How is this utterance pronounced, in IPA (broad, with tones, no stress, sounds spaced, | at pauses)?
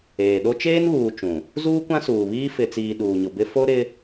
eː˨ ɗ o˦ t͡ʃ eː˦ n β uː˨ t͡ʃ ũ˨ | z uː˦ kʷ ã˦ s uː˨ β iː˦ f ɪ˨ t͡s iː˨ ɗ uː˨ ɲ ʊ˨ b ɪ˦ f o˦ ɾ ɪ˦